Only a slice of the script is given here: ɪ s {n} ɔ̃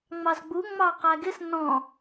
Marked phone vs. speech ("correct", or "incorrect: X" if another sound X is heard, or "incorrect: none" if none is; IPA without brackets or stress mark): correct